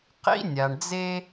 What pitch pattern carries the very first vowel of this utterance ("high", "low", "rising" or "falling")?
high